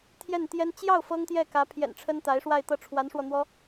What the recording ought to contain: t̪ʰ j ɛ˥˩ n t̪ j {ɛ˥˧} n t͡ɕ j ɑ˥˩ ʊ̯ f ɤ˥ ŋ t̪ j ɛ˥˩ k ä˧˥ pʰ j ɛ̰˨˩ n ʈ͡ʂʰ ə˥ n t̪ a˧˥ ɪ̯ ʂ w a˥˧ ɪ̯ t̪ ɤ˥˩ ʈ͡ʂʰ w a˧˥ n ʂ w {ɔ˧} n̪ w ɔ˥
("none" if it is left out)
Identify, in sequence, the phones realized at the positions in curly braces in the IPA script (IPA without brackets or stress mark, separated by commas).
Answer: ɛ˥, ɔ˧